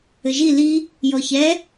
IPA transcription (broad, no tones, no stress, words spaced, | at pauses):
ɘʒi li | jɔçɛ